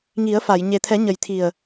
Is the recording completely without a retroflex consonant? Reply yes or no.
yes